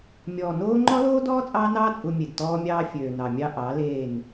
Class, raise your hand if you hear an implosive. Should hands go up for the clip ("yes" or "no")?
no